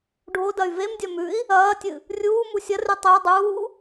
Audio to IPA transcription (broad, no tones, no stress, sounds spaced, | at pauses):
ɖʱ o d ɐ y̯ v e m dʲ ɐ m ʉ i̯ | ɐː tʲ ɨ | rʲ uː m u sʲ ɐ r ʉ tˤ ɨ u̯ dˤ uː